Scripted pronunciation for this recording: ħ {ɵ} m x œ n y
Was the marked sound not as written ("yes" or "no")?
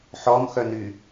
yes